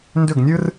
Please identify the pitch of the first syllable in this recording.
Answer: falling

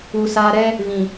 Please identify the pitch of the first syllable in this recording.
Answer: low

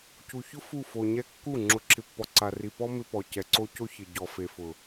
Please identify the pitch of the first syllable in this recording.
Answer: low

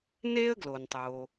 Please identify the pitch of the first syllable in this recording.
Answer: high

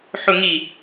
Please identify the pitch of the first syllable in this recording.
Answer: low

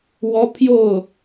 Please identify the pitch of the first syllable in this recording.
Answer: high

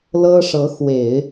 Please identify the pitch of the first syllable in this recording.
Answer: high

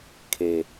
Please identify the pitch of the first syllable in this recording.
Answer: low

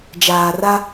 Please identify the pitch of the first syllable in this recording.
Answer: low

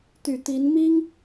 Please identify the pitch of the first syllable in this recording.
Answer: low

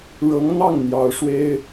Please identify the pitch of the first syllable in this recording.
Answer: rising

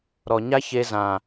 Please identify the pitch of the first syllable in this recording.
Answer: low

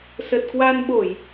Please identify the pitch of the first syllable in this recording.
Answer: low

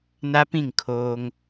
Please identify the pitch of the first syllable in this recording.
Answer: high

